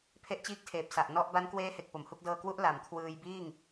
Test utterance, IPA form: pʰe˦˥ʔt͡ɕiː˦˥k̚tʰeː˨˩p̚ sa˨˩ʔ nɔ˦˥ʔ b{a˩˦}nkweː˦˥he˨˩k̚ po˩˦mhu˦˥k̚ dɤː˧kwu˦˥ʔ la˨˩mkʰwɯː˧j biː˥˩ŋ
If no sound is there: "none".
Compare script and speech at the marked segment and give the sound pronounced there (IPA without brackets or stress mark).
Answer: a˦˥